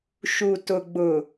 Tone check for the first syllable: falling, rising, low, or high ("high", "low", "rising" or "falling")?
low